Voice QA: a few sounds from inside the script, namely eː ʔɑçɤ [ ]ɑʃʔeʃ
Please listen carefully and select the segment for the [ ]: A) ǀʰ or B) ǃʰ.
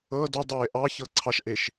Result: A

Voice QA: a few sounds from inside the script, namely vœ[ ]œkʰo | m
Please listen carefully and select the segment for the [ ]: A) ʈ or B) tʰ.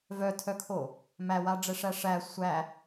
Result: B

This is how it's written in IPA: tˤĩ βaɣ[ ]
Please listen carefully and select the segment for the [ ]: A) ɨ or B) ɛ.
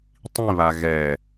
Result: B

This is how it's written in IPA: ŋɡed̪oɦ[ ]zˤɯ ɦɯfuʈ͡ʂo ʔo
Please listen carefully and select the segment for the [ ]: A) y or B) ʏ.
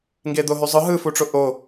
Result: A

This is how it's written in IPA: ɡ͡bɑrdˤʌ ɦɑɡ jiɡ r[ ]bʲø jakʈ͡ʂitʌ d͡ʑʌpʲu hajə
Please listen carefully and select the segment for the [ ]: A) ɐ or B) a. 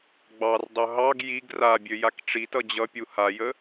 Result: B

